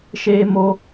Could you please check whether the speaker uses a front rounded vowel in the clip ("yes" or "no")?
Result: no